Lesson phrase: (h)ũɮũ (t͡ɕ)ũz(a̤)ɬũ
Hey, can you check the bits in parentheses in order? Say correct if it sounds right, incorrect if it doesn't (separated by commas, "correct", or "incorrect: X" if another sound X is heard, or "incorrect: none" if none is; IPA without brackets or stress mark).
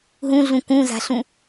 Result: incorrect: ɦ, incorrect: k, correct